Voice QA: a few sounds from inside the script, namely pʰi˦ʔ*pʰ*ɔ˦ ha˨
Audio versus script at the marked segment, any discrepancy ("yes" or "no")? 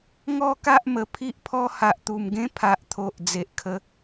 no